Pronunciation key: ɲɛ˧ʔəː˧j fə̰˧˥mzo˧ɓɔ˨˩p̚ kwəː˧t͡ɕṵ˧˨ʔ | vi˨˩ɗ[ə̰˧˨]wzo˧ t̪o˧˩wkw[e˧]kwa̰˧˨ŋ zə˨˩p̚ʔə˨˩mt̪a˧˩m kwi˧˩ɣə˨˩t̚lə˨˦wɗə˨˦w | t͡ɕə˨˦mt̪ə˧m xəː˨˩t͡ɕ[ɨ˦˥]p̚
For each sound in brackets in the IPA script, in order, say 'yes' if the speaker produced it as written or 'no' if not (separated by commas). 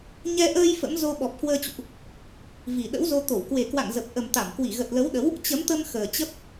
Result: no, no, no